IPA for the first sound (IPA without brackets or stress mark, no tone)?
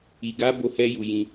i